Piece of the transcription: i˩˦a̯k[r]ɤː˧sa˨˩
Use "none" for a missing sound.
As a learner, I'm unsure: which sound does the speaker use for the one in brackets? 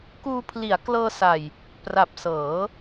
l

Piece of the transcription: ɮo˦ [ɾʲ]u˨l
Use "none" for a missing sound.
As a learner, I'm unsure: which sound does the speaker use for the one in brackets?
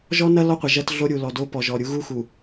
ɾʲ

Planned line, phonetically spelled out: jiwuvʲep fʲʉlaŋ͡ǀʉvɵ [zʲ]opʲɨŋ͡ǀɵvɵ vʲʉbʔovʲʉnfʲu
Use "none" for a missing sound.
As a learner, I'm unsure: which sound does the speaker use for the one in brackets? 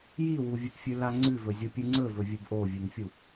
zʲ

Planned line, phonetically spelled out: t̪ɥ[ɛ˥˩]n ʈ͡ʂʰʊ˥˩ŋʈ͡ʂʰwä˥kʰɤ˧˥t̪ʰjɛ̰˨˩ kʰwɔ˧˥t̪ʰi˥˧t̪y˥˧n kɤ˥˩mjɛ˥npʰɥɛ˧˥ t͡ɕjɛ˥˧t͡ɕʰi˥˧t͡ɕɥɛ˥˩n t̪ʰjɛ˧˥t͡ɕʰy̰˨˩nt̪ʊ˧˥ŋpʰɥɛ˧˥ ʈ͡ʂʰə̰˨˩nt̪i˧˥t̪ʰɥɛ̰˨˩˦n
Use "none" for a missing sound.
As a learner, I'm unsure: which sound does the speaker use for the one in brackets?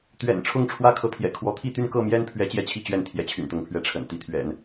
ɛ̰˨˩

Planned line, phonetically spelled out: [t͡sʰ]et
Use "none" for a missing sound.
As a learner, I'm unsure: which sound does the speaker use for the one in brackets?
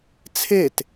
t͡sʰ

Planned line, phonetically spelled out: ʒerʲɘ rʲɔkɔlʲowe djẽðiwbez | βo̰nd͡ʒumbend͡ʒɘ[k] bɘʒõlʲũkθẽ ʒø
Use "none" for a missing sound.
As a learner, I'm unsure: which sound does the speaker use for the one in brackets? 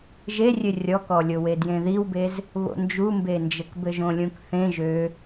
k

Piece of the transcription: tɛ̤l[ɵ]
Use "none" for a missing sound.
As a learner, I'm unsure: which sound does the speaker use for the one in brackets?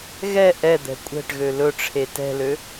ø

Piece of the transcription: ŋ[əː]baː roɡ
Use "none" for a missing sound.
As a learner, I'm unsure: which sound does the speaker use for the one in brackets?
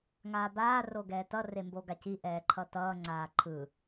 aː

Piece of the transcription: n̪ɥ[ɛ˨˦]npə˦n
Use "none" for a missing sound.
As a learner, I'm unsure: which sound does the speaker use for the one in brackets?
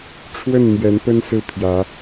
ɛ˨˦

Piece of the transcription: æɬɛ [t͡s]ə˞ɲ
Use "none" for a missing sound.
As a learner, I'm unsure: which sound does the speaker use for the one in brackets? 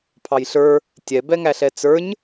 t͡s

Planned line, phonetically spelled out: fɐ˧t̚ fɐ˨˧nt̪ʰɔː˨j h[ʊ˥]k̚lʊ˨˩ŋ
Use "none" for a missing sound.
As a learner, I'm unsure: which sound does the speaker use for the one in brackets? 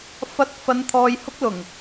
ʊ˥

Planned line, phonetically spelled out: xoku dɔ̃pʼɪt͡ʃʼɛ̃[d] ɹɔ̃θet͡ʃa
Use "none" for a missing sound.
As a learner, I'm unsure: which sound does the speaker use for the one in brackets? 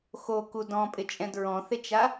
d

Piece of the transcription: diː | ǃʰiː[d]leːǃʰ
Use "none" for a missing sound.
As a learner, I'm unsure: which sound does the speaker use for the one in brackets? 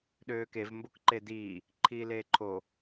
none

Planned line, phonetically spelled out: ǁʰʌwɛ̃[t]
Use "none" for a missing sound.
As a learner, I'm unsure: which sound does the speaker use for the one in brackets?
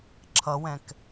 k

